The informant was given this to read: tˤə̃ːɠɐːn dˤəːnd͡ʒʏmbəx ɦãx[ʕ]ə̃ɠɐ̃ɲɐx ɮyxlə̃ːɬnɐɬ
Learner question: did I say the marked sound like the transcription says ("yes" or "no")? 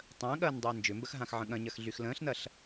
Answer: yes